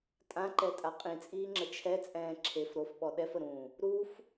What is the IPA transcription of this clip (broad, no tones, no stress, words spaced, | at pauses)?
tʼãǃɛtʼa qʼĩt͡sʼiːŋ͡ǁə t͡ʃʰɛt͡sʼɛ̃ː ǁʰef ɾofɓɔ ɗɛfəɾũː | ɾuf